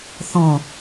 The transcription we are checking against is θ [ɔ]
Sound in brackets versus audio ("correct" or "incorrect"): incorrect